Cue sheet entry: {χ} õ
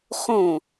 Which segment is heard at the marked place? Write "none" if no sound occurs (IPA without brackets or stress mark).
χ